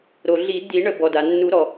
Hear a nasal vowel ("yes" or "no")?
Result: no